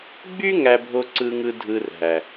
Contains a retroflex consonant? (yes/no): no